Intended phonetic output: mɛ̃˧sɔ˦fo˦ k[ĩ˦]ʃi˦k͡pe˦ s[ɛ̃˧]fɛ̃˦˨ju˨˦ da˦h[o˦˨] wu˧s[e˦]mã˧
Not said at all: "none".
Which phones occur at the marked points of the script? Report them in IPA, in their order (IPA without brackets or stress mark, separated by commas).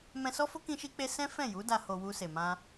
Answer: ĩ˦, ɛ̃˦, o˧, e˨